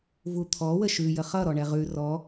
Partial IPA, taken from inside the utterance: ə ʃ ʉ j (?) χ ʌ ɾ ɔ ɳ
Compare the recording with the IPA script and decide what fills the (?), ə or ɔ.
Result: ə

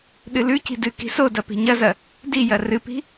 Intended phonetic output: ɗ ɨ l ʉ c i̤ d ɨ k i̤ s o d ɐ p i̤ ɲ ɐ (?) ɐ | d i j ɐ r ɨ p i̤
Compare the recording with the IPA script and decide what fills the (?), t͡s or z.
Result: z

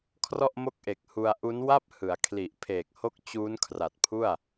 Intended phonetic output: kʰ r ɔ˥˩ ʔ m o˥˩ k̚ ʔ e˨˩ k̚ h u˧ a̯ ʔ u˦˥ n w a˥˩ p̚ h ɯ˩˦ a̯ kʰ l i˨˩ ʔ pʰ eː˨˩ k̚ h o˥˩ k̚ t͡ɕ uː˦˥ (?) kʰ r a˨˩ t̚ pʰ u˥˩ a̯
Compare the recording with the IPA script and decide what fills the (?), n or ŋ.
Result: n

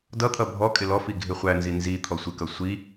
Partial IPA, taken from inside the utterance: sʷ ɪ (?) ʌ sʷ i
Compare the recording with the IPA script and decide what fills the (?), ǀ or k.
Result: k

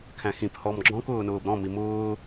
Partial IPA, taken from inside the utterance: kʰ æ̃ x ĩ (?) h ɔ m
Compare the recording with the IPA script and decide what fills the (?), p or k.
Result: p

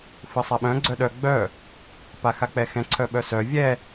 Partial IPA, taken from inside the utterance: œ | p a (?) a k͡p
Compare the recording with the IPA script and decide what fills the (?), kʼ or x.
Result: x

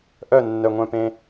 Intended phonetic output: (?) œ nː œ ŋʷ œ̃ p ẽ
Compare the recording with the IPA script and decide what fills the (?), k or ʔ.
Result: ʔ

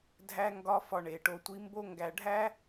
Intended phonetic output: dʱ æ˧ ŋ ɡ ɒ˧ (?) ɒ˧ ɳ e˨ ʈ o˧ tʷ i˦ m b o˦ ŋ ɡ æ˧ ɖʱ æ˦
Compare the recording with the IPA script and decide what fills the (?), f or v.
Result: f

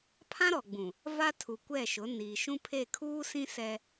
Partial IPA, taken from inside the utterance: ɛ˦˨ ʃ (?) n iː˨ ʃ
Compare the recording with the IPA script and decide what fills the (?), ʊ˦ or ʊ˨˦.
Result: ʊ˨˦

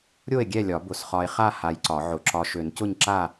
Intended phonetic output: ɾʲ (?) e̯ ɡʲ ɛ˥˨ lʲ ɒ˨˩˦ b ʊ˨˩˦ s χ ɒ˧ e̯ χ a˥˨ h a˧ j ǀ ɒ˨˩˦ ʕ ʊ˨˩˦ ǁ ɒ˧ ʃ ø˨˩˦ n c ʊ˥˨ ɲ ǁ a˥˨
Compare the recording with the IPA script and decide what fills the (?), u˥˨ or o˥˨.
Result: o˥˨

